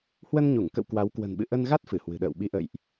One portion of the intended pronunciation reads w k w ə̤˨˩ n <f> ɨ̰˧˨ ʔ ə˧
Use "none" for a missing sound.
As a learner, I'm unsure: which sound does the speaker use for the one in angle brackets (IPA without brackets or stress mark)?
ɓ